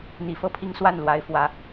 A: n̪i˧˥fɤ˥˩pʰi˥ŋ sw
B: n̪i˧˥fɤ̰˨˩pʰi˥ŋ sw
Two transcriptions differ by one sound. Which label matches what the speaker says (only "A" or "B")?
A